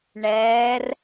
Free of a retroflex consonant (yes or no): no